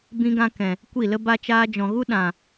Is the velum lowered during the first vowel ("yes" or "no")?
yes